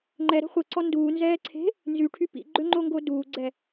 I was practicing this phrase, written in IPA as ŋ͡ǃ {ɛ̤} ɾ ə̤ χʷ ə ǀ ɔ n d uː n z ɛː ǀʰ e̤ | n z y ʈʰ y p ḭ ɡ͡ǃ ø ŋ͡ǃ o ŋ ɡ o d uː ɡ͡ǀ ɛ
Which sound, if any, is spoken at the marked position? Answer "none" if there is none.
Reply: ɛ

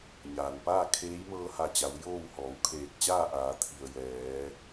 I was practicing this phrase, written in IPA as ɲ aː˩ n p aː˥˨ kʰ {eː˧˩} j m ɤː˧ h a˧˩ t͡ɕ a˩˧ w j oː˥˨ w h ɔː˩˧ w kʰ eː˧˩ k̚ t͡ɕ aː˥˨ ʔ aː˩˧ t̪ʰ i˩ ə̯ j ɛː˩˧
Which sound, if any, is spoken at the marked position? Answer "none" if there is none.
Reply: eː˧˥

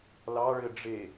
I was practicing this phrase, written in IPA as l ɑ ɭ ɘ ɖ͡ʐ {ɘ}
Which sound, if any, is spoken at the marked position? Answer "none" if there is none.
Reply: e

